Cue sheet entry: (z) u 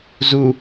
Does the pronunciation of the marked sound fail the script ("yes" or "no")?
no